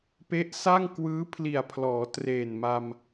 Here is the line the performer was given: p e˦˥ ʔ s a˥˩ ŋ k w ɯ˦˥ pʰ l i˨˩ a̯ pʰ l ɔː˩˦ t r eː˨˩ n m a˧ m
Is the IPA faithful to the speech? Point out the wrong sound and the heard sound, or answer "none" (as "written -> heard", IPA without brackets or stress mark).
ɯ˦˥ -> ɯː˦˥